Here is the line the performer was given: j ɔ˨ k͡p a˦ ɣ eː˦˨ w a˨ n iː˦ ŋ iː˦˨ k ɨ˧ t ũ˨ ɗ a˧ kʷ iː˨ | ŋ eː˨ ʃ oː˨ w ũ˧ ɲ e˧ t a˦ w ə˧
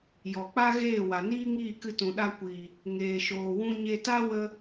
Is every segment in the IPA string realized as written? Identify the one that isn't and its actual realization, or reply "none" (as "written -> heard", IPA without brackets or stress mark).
none